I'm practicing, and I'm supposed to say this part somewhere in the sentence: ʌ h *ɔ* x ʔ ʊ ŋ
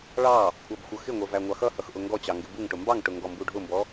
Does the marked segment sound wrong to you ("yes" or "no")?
yes